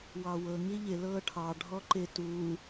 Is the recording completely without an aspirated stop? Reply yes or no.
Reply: no